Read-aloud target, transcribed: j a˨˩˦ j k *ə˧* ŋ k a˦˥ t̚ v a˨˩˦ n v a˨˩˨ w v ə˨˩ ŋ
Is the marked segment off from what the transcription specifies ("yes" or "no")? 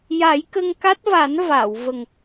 no